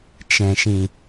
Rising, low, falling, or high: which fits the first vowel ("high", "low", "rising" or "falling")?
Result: low